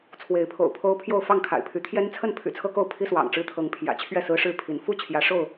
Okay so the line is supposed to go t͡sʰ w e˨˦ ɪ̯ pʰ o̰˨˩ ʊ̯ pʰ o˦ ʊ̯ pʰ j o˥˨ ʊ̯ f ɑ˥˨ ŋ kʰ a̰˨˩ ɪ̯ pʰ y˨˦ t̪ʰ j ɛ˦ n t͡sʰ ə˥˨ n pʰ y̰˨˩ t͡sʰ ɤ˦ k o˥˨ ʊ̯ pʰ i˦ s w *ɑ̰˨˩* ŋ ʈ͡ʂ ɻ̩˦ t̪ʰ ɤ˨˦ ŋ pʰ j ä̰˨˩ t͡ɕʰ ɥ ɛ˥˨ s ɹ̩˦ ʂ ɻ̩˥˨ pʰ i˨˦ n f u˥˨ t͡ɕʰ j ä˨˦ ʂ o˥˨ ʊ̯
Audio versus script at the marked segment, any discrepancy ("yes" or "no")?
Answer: no